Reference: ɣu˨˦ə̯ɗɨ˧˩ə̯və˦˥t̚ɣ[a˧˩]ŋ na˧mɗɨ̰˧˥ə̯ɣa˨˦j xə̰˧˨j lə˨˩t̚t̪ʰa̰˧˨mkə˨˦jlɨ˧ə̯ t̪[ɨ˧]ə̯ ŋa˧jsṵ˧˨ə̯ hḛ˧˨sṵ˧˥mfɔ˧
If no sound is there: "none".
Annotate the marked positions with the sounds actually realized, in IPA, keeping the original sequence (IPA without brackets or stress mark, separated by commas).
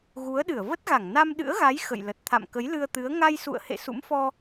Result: a˧˩, ɨ˨˦